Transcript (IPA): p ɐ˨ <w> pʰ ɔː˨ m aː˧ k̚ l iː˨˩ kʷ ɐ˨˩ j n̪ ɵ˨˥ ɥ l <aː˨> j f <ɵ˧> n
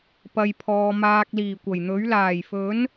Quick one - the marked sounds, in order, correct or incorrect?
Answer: incorrect, incorrect, incorrect

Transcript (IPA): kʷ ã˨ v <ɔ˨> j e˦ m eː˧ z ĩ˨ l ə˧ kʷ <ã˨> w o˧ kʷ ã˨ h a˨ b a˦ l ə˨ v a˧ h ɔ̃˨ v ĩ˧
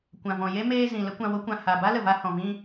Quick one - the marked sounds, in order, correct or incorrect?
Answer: incorrect, correct

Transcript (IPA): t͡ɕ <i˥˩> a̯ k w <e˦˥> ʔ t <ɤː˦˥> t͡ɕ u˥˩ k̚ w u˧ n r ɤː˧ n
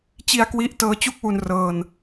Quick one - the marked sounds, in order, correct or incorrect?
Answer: incorrect, incorrect, correct

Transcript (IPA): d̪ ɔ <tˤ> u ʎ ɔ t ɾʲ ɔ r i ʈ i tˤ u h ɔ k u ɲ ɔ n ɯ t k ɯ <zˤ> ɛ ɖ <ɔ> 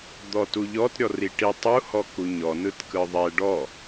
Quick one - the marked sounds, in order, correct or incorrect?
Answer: incorrect, incorrect, correct

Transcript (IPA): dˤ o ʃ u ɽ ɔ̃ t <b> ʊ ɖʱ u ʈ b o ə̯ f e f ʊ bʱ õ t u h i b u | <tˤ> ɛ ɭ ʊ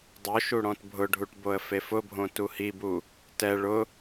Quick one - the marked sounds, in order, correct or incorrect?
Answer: incorrect, incorrect

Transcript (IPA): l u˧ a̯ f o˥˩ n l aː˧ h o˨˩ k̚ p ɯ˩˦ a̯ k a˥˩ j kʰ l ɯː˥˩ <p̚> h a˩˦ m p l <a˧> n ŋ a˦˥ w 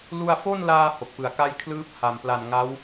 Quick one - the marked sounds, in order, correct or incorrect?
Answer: correct, incorrect

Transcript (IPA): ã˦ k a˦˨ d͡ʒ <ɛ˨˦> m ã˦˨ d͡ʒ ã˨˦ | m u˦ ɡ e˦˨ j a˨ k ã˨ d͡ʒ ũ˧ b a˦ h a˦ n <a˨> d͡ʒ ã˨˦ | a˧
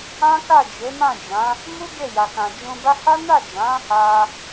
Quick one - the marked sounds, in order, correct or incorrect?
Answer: incorrect, incorrect

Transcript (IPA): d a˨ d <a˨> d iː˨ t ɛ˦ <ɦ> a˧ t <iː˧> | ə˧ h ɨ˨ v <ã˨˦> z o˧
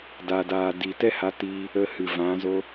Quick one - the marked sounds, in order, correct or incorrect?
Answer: incorrect, incorrect, correct, correct

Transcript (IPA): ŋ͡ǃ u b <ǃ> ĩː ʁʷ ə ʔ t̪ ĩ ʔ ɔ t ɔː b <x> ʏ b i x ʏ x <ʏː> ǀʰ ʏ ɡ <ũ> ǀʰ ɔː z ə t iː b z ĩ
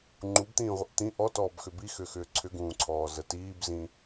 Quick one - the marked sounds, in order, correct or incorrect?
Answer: incorrect, correct, correct, incorrect

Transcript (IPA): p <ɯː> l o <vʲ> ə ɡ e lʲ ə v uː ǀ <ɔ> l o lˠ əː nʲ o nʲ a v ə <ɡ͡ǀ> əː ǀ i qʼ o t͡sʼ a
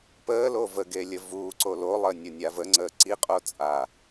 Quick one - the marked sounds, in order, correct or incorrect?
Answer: incorrect, incorrect, incorrect, incorrect

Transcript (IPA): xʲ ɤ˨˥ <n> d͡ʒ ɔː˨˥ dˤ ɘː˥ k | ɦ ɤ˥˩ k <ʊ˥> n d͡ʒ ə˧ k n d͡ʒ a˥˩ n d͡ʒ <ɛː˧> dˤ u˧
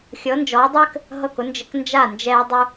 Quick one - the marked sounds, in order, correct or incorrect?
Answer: correct, correct, correct

